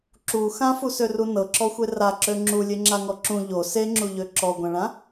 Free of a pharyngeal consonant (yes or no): yes